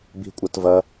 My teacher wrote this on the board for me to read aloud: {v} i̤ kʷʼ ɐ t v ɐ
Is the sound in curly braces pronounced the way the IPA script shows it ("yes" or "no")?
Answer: no